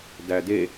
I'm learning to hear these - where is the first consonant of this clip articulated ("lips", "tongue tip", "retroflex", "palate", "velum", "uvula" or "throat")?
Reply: tongue tip